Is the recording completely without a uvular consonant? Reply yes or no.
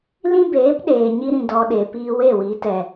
yes